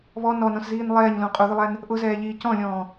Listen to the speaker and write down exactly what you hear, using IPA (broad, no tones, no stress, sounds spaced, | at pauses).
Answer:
β ɔ n ɔ n ɔ̃ s z iː n lˠ ɛː ɲ l ũ qʼ u ð ʊ lˠ æ n | ʔ ʊ z ɛː ʎ iː c ɔ̃ lʲ ɔ̃ː